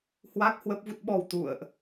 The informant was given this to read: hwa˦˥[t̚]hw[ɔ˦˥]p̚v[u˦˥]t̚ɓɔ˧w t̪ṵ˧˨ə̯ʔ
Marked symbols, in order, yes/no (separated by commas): no, no, yes